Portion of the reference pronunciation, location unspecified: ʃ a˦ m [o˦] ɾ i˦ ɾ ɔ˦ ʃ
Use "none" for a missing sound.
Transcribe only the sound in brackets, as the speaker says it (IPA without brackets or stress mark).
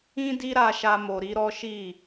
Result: o˧